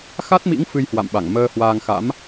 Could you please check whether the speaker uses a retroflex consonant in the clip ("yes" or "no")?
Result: no